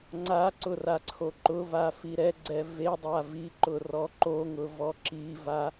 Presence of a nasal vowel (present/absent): absent